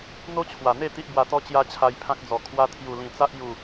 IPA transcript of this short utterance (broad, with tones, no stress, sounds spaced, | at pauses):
n̪ o˦ t͡ɕʰ w a˨˩ n̪ e˥˧ t̪ i˦ ʔ b w a˧ t̪ ɔ˦ t͡ɕ j a˦ t͡ɕʰ a˧ j pʰ ã˦ k̚ d͡z ɔ˨˩ kʰ w a˧ t̪ʰ j u˨˩ l ĩ˨˩ t͡s a˦ ʔ j u˨˩